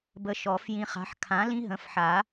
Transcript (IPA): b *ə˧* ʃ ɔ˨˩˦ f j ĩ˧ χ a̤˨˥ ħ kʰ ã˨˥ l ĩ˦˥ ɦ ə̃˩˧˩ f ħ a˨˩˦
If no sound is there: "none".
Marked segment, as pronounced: ə˧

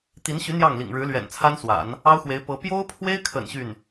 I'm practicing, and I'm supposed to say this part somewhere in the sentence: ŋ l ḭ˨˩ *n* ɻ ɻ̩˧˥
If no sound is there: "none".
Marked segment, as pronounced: ŋ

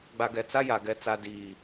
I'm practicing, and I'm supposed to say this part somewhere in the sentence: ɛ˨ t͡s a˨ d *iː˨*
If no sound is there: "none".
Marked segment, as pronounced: iː˨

